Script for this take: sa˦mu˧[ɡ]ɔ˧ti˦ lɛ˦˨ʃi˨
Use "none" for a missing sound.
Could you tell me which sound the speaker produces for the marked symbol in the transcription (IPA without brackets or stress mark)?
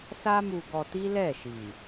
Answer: ɡ